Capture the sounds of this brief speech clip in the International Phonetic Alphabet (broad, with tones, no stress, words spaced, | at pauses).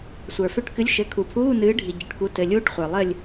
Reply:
sʷə˞˩fø˦˨ʈ kɨ˨˥lʲʃɘ˩˧˩ kʰu˩pʰuː˧˥˧nɨː˨˥ɖʱi˩ ɟɘ˩˧˩ʈ ku˨˥tɘ˩˧˩lʲuː˦˥ʈχʷə˞˩ lˠɘ˦˨lʲ